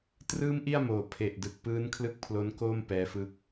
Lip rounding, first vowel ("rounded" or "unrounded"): unrounded